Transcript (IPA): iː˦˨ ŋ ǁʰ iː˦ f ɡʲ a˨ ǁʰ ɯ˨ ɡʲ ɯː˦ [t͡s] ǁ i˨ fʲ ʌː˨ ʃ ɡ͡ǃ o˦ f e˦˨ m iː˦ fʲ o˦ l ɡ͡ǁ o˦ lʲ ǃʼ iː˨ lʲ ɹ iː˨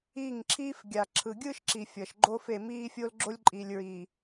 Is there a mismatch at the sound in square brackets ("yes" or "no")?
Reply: yes